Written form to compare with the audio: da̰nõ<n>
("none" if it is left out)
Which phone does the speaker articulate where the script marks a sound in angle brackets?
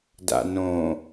none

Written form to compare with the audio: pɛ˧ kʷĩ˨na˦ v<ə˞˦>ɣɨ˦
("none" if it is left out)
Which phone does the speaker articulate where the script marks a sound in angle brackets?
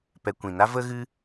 ə˦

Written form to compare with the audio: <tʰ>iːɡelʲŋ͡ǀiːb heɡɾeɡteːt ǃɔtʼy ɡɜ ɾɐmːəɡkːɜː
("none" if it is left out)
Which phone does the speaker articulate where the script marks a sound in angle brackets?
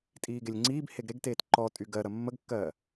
tʼ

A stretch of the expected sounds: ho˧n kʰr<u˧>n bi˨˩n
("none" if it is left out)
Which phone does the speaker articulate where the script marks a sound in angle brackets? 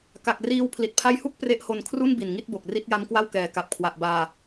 u˥˩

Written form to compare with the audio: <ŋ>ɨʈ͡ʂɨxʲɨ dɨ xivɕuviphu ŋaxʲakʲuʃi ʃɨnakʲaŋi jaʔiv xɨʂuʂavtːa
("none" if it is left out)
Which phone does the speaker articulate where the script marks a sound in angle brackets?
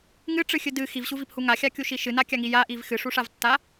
ŋ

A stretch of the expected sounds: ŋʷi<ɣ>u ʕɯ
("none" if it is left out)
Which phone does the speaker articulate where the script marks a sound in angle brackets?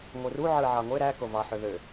r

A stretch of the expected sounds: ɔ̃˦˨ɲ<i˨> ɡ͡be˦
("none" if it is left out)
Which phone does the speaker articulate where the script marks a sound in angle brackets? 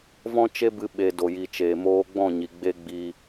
i˨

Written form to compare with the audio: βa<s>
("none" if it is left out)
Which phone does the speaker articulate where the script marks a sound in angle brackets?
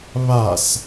s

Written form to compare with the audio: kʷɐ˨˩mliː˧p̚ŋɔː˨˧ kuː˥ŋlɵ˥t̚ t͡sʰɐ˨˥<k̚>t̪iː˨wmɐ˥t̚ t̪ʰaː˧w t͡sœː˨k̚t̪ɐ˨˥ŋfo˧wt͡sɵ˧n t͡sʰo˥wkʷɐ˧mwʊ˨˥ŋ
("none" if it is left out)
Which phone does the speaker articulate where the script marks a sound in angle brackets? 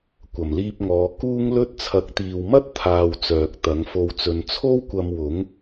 k̚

